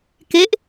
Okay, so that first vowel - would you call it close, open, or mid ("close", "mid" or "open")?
mid